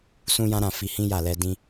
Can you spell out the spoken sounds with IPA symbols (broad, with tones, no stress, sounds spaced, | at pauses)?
s ũ˦ j ã˦ ɾ ã˦˨ f i˧ h ĩ˦ j a˦˨ l ɛ˧ d ĩ˦